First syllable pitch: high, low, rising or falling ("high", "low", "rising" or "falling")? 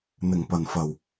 low